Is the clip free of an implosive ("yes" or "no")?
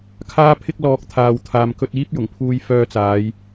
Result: yes